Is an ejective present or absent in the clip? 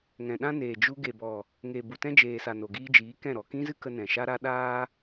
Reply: absent